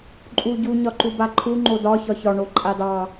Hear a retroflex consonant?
yes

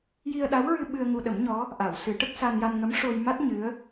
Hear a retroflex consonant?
yes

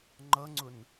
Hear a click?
yes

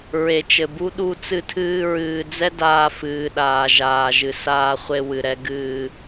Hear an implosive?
yes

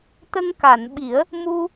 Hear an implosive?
yes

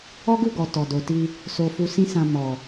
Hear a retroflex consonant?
no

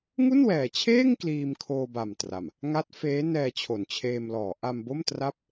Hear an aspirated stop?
yes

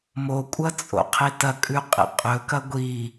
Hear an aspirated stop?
yes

